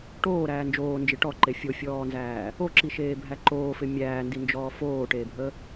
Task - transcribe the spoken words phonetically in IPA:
ʈ oː ɾ æː n d͡ʒ oː n d͡ʒ ɪ ʈ ɔ ǃ e fʲ o fʲ ɔː n z æː | o ǁ i ʃ eː bʱ æ ǃ oː f ɪ mʲ æː n d i n d͡ʒ ɔː f oː ʈ eː bʱ ə

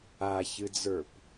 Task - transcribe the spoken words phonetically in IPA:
a ç ɨ d͡z ə˞ p

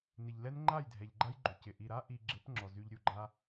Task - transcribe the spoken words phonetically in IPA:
n ɪ˨ ʎ l ɛ˦ n ŋ͡ǃ a˦˨ j dʱ ɛ˨ ʎ ɡ͡ǃ a˦ j ɡ͡ǃ ʏ˨ c ɪ˨ ʔ i˨ ɾ a˦ ʔ i˧ ɡ͡ǁ ɪ˨˦ p ŋ͡ǁ ɔ˨ z y˧ ʎ ɾʲ u˧ ɡ͡ǃ a˦

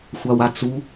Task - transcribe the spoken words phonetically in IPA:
xʷ a w a t͡s u

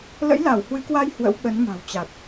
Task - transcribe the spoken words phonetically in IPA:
l ə̰˧˥ j l a˧˩ w h w ɨ˨˦ k w a˧ j h w ə̰˧˥ w ɓ ə˨˦ n m a̤˨˩ w t͡ɕ a˨˩ t̚

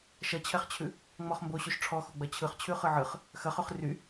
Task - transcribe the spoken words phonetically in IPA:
ʃ ɐ t͡ɕʰ ɛ χ t͡ɕʰ ʉ | ŋ͡m ɔ χ m b o ɕ ʉ ʃ ʈ͡ʂʰ ɔ x o ɡ͡b ɐ t͡ɕʰ ɯ χ t͡ɕʰ ʉ χ ɯ ʕ ɯ χ | x ɐ χ ʉ χ r y

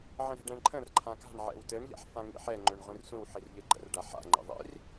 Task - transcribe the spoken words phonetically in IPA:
ʕ ə̃ ɾ ɛ̤ ɖ ɛ̃ ɳ ǃʰ ə̃ r ǃʰ ã k a̤ ɳ ʕ ɛ̰ w t ɘ ɳ ʎ a̰ ħ f ã ŋ ḭ ħ ɛ ŋ͡ǃ ø ɳ ʁʷ ĩ r sʷ ĩ w ħ i r ʎ ɘ ɡ͡ǃ ə̰ r ɖ a ħ a̰ ŋ͡ǃ ḭ ðˤ ḭ r

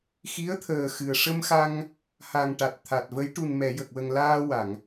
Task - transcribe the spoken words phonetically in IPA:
x i˧˥ ə̯ t̪ʰ əː˨˩ x ɨ˨˩ ə̯ ʂ ə˧ m x a˧ ŋ | h a˨˩ ŋ ʈ a˨˩ t̚ t̪ʰ a˨˩ t̚ v ə˧˥ j ʈ u˨˩ n m ɛ˨˩˨ j ə˨˩ k̚ w ə˨˩ ŋ l aː˧ w a˨˩˨ ŋ

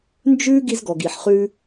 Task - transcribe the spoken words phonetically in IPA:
n d͡ʒ ʉ˥ ɡ i˧ z ɡ ɔ˩ ɡ i˩ ħ χ ʉ˧

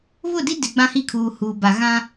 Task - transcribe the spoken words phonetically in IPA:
β ʊ˦˨ d i˦ d ɪ˨ ɡ͡b ã˦ h i˦˨ kʰ uː˨ h uː˨ b a˨ ɣ ã˦

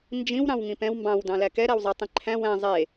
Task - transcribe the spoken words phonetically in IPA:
n d͡ʒ ĩ w ɾ ɑ̃ w ŋ ĩ p ɛ̃ w m b ɑ̃ w d ɑ̃ l æ k ɛ ɾ æ w zˤ i tˤ ĩ ǃʰ æ̃ w æ̃ zˤ e

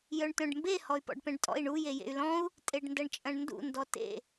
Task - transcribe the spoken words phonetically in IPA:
j œ ɳ t œ̃ ɖ m b e h ɔ y̯ p ɔ̰ ɖ p ɛ̃ ɖ tʼ ɔ̰ i̯ ɳ u j e j ḛ y̯ l ɔ̃ u̯ | tʼ e ɖ n d ɐ ɳ t͡ʃʼ ɐ̃ ɳ n d ṵ n d ɔ t ḛ

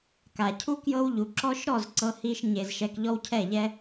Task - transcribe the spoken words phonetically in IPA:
k a˨ cʰ u˦ k j ɤ˦ w ʎ u˨ ǁ ɔ˧ ʃ ɾ ɔ˦˨ z ǀ ɤ˦ h i˦ ʃ ɲ e˧ z ʃ ɛ˧ k ʎ ɔ˦ w cʰ ɛ˦˨ ʎ ɛ˦

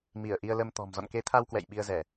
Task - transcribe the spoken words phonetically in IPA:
m i˧˩ ə̯ ʔ i˧ ə̯ l ə˧ m t̪ ɔ̤˨˩ m z ɔ̰˧˨ n k e˨˦ t̪ʰ a˧ w k w ɛ̰˧˨ j ɓ i˧ ə̯ z ɛ˧˩˨

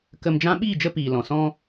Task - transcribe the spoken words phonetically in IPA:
k ə˧ m d͡ʒ ã˦ ɓ iː˦˨ d͡ʒ ə˧ p iː˨ l ɔ̃˨ s ɔ̃˧

